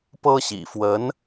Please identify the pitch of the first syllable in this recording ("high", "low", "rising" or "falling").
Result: high